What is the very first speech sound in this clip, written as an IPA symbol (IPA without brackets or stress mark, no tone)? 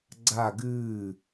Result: ɡ͡ǀ